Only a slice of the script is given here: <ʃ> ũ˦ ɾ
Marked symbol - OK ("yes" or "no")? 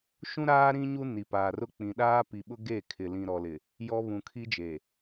yes